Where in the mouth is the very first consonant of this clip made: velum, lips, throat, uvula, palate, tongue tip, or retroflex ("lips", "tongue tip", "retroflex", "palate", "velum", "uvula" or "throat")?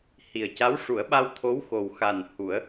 throat